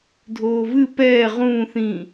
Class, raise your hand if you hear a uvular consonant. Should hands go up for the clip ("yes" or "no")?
yes